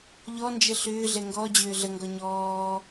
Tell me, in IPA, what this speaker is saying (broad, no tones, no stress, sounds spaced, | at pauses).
ʎ ɔ n d͡ʒ ə ɬ ʏː ɮ ɛ ŋ ɡ ɔ d͡ʑ ʏː ɮ ə ŋ ɡ ɔ ɲ ɔː